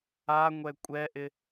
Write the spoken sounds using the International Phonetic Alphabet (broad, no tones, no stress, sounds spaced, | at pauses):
a ŋʷ ɛ kʷʼ ɛ ʔ ɪ